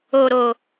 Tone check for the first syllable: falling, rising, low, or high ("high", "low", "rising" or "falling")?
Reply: low